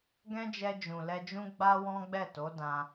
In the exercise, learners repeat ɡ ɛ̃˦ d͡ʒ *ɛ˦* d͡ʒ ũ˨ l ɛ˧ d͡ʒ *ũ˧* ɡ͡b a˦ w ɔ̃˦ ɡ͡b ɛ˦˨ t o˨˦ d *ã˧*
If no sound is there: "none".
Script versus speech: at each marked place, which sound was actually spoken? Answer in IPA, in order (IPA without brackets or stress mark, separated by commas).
ɛ˧, ũ˦, ã˧